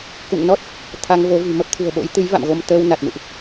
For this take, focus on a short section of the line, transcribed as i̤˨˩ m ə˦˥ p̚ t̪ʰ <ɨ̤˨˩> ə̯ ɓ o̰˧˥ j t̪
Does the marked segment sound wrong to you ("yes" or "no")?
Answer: no